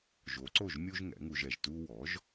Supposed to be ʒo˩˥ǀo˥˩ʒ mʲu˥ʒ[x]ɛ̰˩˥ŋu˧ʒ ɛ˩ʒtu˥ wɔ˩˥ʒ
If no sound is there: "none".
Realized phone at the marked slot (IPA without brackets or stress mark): ŋ